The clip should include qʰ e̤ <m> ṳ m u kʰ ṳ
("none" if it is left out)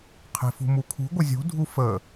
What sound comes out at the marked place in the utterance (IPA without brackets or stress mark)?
f